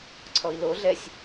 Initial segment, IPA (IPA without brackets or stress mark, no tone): ǀʰ